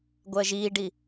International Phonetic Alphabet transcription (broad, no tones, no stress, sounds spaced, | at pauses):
ɡʷ ɜ ʒ iː ɖ i